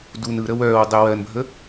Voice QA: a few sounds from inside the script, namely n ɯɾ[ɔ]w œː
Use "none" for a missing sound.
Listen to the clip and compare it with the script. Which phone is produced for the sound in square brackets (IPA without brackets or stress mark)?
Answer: ə